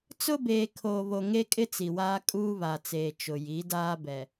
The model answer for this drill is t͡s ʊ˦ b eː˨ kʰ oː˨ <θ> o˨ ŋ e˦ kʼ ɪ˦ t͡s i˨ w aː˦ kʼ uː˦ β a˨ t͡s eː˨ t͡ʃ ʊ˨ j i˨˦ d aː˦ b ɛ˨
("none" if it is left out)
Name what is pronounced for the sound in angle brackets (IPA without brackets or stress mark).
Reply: β